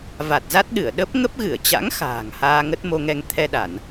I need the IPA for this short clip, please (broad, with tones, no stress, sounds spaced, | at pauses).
v a˨˩ t̚ z a˦˥ t̚ ɗ ɨ˧˩ ə̯ ɗ ə˦˥ p̚ ŋ ə˦˥ p̚ ɣ ɨ˧˩ ə̯ t͡ɕ a̰˧˥ ŋ x a̤ː˨˩ ŋ h aː˧ ŋ ə˦˥ t̚ m o˧ ŋ ɛ˧ ŋ t̪ʰ ɛ˧ ɗ a˧˩˨ n